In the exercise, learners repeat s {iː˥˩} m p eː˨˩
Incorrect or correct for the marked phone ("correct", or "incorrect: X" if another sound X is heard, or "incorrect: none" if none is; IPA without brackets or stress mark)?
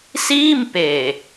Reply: correct